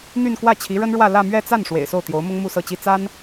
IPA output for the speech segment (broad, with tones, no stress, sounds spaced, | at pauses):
n̪ y˥˧ n k w ä˥˩ t͡ɕʰ i˧˥ ɻ ə˥ n ɻ w ä˥˧ l ä˥˧ m ɥ ɛ˥˧ t͡s a˥˩ n ʂ w ḛ˨˩ ɪ̯ s o˥˩ ʊ̯ t̪ j o˧˥ ʊ̯ m ʊ˥ ŋ m u˥˧ s ɤ˥˩ t͡ɕ i˥ t͡s a˥ n